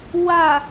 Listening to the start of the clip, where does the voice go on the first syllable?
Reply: low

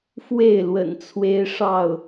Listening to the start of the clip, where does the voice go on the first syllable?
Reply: falling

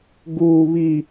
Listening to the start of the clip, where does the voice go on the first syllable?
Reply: high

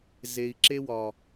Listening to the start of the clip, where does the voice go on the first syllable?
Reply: low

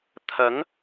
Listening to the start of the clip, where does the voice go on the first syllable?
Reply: rising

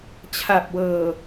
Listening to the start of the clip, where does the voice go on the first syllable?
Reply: low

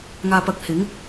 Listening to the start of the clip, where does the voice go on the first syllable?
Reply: low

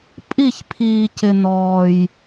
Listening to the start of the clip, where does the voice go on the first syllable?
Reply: falling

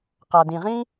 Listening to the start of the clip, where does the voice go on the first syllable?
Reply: low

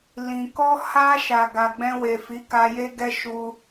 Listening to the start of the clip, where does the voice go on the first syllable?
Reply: low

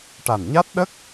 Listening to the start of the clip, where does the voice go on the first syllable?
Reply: low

